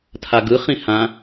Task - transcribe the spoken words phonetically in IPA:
tʰ a ɡ ɯ χ ĩ h ã

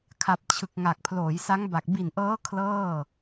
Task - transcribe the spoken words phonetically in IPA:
kʰ a˨˩ p̚ t͡ɕʰ ɯ˨˩ k̚ ŋ a˨˩ k̚ pʰ l oː˩˦ j s a˦˥ ŋ b a˨˩ k̚ b i˨˩ n ʔ ɤː˦˥ kʰ l ɤː˥˩

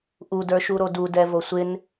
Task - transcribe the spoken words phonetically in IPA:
ʔ u d ə˞ ʃ u ɾ o d u d ɛ v o sʷ ɪ n

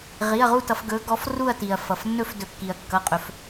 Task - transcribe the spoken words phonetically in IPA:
ʁ i˩˧˩ ɐ̯ ʁ u˥˧ t ʌ˩˧ f ɡ ɵ˩˧ ɡ ɔ˩˧ f r u˥˧ ɐ̯ t i˩ ɐ̯ f ʌ˩ f nː ɵ˥˧ f d ɵ˩ kː i˩ ɐ̯ kː ʌ˩˧˩ qʼ ɵ˩˧ f

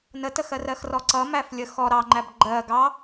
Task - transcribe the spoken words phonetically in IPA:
n ə t ə x ɜ r ɜ x r ɔ ǀ ʌ m æ f lʲ ə x ɔ ɾ ɑ ŋ͡ǃ æ b ɡ͡ǃ ɜ ɡ ɑ

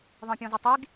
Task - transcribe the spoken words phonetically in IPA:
ðˤ ẽ pʲ ɔ̃ z ɘ tˤ i ɡ

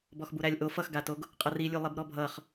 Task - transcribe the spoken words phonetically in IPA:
b ɔ x b u ɾ æ lʲ ʔ o f ʌ x ɡ a t o ɡ | qʼ ʌ r i lʲ u lˠ i b ɾ ɔ bʱ ʌ χ

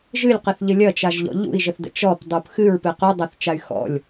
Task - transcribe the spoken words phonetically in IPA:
ʒ ɨ lʲ q ɘ θ ʎ ɘ lʲ ɐ t͡ʃ a ʒ ʎ ɔ̰ ʎ ṵ i̯ ʒ ə θ d ə̰ t͡ʃ ɔ p dˤ u p x ɨ ɹ p ɨ q u dˤ ɐ θ t͡ʃ a y̯ x ɔ̰ lʲ

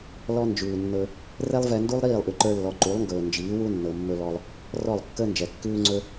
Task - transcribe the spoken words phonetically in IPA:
l ɔ˦ n d͡ʒ ʉː˨ nː ɵ˧ | r ɛ˦ lˠ v ɛ˧ n d u˦ lˠ ɾ iː˦˨ lˠ ʔ ʉ˨ ǃ ə˞˧ lː ɔ˨ ǃ u˨˦ lˠ ŋ ɡ ɵː˨ n d͡ʒ iː˨˦ w u˦ nː ɤ˨ mː ɵ˧ l ɔ˧ lˠ | r ɔ˦˨ lˠ kː əː˦ n d͡ʒ ɛ˨ kː ʉː˦ ŋ͡ǀ ɵ˦

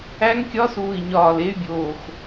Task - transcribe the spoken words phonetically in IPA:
æ˦˥ ŋ kʲ ɒ˦˥ s uː˧˩ i̯ ɲ ɒː˧˩ l e˦˥ y̯ bʲ oː˧˩ x

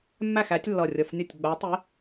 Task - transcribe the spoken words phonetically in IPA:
mː æ˥˩ x æ˨˥ tʲ lː ʌ˧˩ rʲ ʌ˧˩ f nʲ ʌ˥˩ tʲ ɡ͡b æ˨˥ tˤ i˨˥

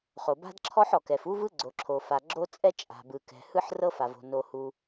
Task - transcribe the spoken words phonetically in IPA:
χ o˩ b a̤˥ d ǁʰ ɔ˥ ħ ɔ˩ k ɛ˩ f u˥ v ɯ˥ ɡ͡ǀ o˩ ǁʰ o˩ f a˩ ɡ͡ǁ o˥ t͡sʼ ɛ˥ t͡ʃʼ a̤˩ b ɯ˩ k ɛ̤˩ h ɯ˥ ħ r ɤ˥ f a˩ v o̤˩ n o˩ h u˩

